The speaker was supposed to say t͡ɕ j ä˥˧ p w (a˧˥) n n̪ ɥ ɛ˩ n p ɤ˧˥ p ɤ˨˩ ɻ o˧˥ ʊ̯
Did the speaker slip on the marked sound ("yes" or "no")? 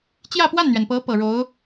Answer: yes